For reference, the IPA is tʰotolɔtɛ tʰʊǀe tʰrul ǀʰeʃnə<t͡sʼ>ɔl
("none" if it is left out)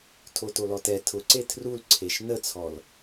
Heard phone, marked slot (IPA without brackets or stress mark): t͡sʰ